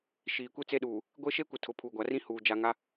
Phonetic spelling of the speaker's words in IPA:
ʃiː˨kʷi˦t͡se˦ɗuː˨ | ɡʷe˦ʃe˦kʷɪ˨ tʰʊ˨˦pʰuː˨ɡʷa˨rĩ˦ huː˨ d͡ʒa˨ŋa˦

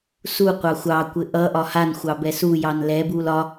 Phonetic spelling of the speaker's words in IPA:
suqʷɑ xʷɑkʷɘ ʔʌ ʔɒhanxʷɑ bɛsujɑn lɛbul ɒ

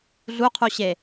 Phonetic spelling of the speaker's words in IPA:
ɮuqʰuɕe

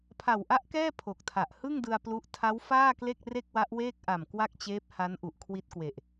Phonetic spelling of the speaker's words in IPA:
pʰa˨˩wʔa˦˥ʔkɛː˥˩ pʰo˨˩k̚tʰa˨˩ʔ hɯ˥˩ŋdɯ˧a̯ plu˦˥ʔ tʰa˦˥wfaː˥˩kle˥˩k̚ re˥˩k̚wa˦˥ʔweː˥˩k̚ʔa˨˩m kwa˥˩k̚t͡ɕeː˦˥p̚ha˦˥n ʔu˨˩ʔkʰwi˦˥t̚kwe˨˩ʔ

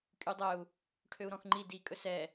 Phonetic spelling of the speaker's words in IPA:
kʼydˤœu̯ | ʈʰøu̯ɾɔ̃xŋ͡ǃi dikʼɵ sɛ

